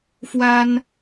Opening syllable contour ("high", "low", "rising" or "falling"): high